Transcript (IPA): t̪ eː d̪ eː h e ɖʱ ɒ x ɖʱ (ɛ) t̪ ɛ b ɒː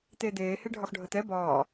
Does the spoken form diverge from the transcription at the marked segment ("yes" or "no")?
yes